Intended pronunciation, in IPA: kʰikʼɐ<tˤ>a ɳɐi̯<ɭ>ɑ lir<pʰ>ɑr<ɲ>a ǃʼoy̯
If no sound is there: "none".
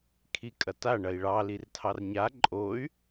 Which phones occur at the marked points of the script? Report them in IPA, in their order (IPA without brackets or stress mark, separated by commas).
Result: t, ɭ, tʰ, ɲ